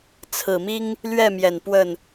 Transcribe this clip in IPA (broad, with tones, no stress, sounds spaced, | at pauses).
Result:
t͡sʰ ɹ̩˨˩ m i˥ ŋ | l ɥ ɛ˥˩ m j ɛ˨˩ n p w ə˥˩ n